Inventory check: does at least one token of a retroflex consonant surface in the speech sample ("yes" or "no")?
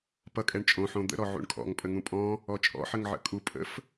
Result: yes